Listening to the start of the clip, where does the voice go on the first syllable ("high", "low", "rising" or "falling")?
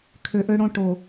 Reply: low